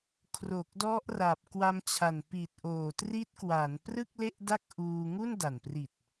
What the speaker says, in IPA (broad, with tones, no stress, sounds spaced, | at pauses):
kʰ r o˨˩ k̚ d ɔ˦˥ ʔ r a˨˩ p̚ k w a˧ m t͡ɕʰ a˨˩ n p i˨˩ t̚ ʔ oː˨˩ t r i˦˥ t̚ k w a˩˦ n p r ɯ˥˩ k̚ l e˥˩ ʔ d a˥˩ k̚ ʔ uː˧ ŋ u˥˩ n d a˨˩ n p r i˨˩ t̚